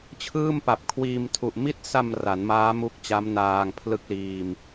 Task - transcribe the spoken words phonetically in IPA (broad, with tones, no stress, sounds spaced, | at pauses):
t͡ɕʰ ɯː˥˩ m p a˨˩ p̚ kʰ w iː˧ m tʰ u˨˩ ʔ m i˦˥ t̚ s a˧ m r a˩˦ n m aː˦˥ m u˦˥ k̚ t͡ɕ a˦˥ m n aː˧ ŋ pʰ l ɯ˥˩ k̚ l iː˧ m